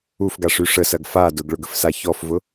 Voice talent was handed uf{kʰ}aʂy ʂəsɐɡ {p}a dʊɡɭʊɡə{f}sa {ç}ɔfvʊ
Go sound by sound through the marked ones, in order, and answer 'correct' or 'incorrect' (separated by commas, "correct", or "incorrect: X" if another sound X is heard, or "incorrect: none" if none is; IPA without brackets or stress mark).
incorrect: ɡ, incorrect: f, correct, correct